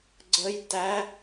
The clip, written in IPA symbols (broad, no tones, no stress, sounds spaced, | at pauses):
ɡ͡ǀ ə j t æ